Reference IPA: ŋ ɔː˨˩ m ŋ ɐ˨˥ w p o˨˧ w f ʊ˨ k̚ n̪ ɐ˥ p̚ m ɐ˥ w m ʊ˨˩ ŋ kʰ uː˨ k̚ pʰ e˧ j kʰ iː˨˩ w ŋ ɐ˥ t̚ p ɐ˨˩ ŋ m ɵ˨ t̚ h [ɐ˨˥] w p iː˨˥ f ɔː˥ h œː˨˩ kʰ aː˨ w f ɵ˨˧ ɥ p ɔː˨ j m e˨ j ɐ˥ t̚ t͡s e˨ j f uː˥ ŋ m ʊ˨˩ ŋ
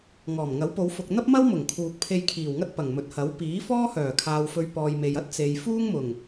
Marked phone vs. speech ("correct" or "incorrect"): correct